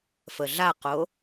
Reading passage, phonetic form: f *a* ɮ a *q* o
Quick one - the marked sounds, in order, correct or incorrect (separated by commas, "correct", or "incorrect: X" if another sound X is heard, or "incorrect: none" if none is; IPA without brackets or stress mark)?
incorrect: ə, correct